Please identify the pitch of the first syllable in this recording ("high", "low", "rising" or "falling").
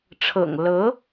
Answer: low